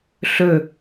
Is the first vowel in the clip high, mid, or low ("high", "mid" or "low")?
mid